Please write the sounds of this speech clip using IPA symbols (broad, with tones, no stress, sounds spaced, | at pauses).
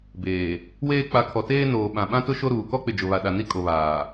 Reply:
b eː˨ | w eː˦ k͡p a˨˦ kʰ ɔ˨ t eː˦ n oː˨ ɓ ã˨ ɓ ã˦ t ʊ˦ ʃ o˦ ɾ uː˨ k ɔ˦ k͡p ɪ˨ d͡ʒ ʊ˨ β a˨ ɗ a˨ n i˦ kʼ o˨ β aː˨